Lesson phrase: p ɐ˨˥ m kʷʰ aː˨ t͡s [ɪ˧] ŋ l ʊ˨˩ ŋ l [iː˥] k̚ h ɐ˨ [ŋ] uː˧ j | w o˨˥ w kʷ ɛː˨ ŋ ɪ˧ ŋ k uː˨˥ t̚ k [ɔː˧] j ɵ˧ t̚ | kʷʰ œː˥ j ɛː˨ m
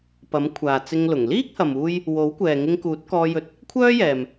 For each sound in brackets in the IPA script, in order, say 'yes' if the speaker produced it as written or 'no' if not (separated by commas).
yes, yes, no, yes